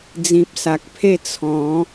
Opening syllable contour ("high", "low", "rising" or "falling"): low